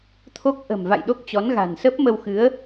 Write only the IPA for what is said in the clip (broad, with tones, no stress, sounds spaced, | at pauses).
t̪ʰ o˦˥ k̚ ʔ ə̤˨˩ m v a̰˧˨ j ɗ o˦˥ k̚ t͡ɕ ɔ˨˦ n ɣ a̤˨˩ n s ə˦˥ p̚ m ə˧ w x ɨ˨˦ ə̯